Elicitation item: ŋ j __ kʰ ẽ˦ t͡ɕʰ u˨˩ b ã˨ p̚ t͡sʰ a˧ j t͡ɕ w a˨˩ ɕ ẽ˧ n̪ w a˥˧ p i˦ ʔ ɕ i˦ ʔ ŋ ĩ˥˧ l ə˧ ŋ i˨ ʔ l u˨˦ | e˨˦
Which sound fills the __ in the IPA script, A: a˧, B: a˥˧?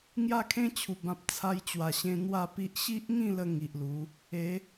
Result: B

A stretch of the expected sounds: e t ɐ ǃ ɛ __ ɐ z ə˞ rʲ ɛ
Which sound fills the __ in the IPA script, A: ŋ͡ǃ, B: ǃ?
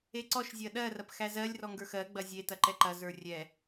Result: B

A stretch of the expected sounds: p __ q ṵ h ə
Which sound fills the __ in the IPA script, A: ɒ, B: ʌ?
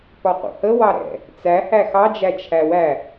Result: A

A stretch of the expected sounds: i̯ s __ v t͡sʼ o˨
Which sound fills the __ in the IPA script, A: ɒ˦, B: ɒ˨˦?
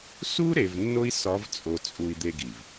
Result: B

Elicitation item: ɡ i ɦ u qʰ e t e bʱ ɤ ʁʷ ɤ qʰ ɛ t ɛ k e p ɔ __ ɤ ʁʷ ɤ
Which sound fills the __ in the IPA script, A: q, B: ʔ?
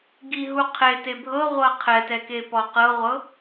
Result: A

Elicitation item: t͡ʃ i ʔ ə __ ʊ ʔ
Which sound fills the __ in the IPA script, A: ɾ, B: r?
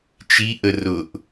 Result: B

